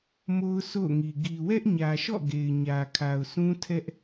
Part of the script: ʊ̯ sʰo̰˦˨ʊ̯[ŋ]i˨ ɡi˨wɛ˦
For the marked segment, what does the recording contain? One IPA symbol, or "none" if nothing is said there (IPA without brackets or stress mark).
ŋ